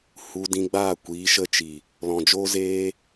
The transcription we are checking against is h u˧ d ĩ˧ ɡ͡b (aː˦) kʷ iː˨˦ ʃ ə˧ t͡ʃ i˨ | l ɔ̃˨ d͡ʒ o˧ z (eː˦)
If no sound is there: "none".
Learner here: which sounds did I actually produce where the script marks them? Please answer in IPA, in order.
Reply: aː˦˨, eː˧

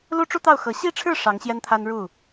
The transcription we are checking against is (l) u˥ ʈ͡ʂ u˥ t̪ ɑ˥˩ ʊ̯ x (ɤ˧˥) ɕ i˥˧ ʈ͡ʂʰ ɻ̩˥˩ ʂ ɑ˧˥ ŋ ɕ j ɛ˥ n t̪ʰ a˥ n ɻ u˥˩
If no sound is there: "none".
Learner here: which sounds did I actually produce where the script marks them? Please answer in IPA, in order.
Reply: l, ɤ˧˥

